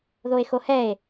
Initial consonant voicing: voiced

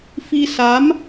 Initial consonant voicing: voiceless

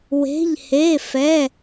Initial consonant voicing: voiced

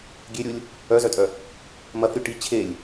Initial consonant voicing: voiced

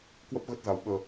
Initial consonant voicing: voiceless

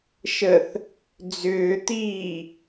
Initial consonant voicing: voiceless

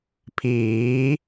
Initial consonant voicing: voiceless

